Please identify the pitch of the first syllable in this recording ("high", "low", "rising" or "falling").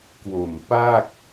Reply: low